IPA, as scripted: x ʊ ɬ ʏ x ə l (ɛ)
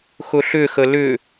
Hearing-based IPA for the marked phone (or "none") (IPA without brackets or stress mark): ʏ